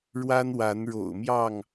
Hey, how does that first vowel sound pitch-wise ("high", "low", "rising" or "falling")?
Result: high